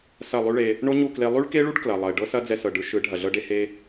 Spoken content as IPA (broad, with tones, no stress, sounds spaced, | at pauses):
s ɐ˦˨ lˠ y˦ ɭ e˧ | ɳ o˦ ɲ u˦˨ k l e˧ lˠ y˦ ɭ k e˦ ɭ u˦ ɖ k l ɐ˨ lˠ ɐ˨ ɪ̯ ɖ ɤ˦ s ɐ˦ d͡z ɛ˧ s ɤ˨ ɖ ɯ˧ ʃ ɯ˨˦ ɖʱ ɐ˨ ɮ ɤ˦ ɖ e˦ h e˦